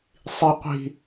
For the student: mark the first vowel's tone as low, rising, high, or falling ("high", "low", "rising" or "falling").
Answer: high